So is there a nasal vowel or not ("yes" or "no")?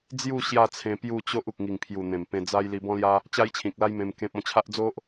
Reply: yes